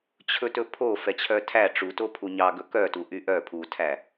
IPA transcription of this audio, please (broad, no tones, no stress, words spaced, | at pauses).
t͡ɕʰɵtɵpʰo fɛt͡ɕʰœtʰæ ʈ͡ʂuto pʰuɲɑɡɵ kœtu ʔyʔœ pʰutʰæ